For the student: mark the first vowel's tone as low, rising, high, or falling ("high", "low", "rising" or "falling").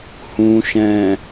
low